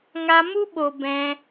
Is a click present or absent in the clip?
absent